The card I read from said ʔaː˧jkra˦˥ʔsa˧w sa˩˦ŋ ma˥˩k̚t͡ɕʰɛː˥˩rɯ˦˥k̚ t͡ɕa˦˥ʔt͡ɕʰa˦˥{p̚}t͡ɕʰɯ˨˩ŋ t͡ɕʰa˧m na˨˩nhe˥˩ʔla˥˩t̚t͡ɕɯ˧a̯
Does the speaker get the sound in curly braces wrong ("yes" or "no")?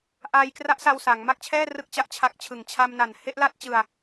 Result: yes